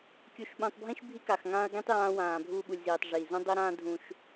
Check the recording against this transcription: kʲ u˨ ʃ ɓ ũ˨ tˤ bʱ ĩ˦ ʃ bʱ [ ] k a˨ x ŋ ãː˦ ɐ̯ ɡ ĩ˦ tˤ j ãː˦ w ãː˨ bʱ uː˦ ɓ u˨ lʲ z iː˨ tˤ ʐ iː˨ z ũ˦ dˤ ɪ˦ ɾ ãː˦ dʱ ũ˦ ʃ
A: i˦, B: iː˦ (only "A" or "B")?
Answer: A